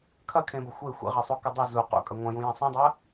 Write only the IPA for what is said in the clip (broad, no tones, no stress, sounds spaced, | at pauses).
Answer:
kʰ ɐ kʰ ẽ b ɐ xʷ e xʷ ḛ ʁ e sˤ u k ɐ dˤ u z u q ṵ kʼ ɐ ŋʷ ɐ̃ j ũ j ɐ̃ sˤ ũ dˤ ɐ